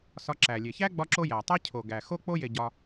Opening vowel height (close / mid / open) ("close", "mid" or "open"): open